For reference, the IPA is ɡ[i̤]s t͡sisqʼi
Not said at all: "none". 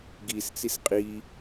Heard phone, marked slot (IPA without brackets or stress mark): i